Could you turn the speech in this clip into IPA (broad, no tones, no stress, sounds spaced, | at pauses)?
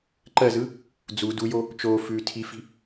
ǃ ɜ z ɯ | d͡z u d u j o | t͡ʃ oː f ʉː tʰ i f i̤